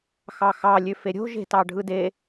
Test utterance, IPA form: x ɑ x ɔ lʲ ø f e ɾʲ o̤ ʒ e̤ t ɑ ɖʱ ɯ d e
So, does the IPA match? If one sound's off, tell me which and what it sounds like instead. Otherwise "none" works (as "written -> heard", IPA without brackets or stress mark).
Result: ɔ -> ɑ